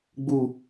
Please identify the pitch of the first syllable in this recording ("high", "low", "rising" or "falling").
falling